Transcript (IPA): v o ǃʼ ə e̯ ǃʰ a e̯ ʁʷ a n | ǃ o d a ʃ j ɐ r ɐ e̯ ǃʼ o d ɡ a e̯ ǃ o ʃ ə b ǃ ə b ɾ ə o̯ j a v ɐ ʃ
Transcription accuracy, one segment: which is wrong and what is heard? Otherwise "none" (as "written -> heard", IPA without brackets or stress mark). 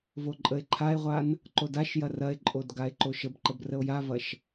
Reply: ɾ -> r